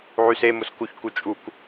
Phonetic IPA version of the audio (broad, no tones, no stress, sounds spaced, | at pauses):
ʕ y s e m ʊ s k u ç k u t͡ʃʼ u k